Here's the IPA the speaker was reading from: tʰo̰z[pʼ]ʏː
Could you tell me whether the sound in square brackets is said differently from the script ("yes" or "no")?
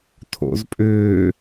no